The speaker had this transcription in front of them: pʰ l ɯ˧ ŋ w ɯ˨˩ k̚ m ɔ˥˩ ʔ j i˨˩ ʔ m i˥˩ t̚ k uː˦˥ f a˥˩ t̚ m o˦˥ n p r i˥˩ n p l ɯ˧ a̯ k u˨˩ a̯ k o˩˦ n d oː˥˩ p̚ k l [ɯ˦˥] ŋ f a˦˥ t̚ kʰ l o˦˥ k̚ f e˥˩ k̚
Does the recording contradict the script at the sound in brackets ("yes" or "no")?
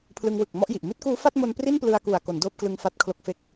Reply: yes